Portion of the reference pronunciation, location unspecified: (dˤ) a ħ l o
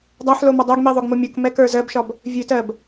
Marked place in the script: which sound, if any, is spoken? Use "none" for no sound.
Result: dˤ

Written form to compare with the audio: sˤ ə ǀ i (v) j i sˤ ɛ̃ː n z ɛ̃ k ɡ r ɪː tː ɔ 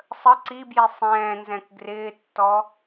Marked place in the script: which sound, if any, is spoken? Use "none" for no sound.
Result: b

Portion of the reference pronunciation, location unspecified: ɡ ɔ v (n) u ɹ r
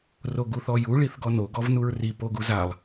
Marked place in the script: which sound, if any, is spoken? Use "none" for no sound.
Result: n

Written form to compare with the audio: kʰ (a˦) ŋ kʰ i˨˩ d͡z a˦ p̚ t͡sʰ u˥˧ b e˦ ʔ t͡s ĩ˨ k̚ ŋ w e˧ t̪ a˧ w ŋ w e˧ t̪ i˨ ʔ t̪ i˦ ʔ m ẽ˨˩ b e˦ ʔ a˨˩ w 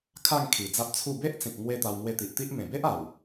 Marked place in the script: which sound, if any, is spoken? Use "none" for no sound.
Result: a˥˧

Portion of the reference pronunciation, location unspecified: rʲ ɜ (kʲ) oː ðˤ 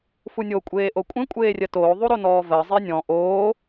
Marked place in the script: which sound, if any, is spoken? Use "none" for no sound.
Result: t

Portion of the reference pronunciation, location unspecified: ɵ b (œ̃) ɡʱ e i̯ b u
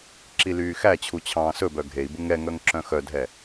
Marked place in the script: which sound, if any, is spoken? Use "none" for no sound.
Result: œ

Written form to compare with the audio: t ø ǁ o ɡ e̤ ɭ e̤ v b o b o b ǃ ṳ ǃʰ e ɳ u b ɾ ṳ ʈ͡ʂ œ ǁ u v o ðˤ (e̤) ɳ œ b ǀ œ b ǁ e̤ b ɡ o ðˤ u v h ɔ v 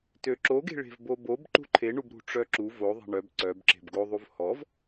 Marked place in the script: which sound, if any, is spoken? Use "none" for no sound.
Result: e̤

